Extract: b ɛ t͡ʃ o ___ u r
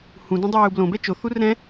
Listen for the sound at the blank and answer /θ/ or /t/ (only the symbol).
θ